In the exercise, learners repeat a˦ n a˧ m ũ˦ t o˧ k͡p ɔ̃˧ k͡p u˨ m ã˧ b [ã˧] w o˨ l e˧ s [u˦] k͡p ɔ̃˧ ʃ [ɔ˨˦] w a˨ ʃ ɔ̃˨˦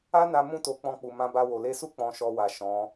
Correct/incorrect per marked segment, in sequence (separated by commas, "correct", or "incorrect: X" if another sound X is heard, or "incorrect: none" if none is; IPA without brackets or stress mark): incorrect: a˧, correct, incorrect: ɔ˧